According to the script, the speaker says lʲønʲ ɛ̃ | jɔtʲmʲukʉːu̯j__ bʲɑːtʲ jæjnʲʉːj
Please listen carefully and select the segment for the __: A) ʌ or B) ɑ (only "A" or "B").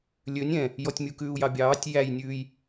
B